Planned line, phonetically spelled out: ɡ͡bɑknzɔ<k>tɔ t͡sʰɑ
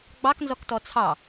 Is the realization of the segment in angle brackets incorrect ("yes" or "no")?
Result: no